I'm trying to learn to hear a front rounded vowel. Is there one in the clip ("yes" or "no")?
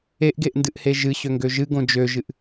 yes